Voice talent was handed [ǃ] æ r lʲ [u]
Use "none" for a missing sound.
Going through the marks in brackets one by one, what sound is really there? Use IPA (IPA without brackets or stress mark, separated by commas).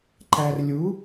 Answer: ǃ, u